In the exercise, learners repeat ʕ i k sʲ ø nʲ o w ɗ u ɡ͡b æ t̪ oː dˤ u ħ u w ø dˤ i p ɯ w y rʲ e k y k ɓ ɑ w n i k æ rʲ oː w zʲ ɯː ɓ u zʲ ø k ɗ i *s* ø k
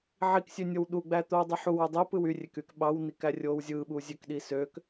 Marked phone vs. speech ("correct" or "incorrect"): correct